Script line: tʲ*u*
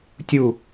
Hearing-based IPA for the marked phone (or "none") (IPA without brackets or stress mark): u